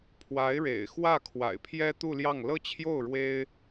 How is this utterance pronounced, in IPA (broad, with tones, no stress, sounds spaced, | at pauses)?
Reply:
pʰ w a˧˥ ɪ̯ ɻ ḛ˨˩ ɪ̯ x w ä˥˩ kʰ w a̰˨˩ ɪ̯ pʰ j ɛ˥ t̪ u˥˧ l j ɑ˥˩ ŋ l ɤ˥ t͡ɕʰ j o˥˩ ʊ̯ ɻ w e˥ ɪ̯